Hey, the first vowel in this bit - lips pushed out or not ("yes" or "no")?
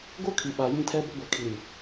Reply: yes